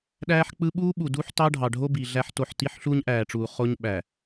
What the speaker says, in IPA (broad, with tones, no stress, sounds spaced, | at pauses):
ɗ æː˦ ħ k͡p ɯ˦ ɓ uː˦ ɓ u˨ d uː˦ ħ t ɑː˦ ɖʱ ɑ˨ ɖʱ o˦ b i˨ ɮ æ˦ ħ t o˦˨ ħ t i˦ ħ ɬ uː˦ ɲ ʔ æː˨ ʈ͡ʂ uː˨ χ o˦ ɲ ɓ æː˨